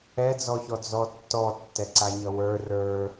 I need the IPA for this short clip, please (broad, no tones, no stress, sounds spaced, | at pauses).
ɛ d͡z ɔ ç ɔ d͡z ɔ tː ɔ tː ɛ ǀ a ɲ ʌ w ə˞ r ə˞